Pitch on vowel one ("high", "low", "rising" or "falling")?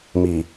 low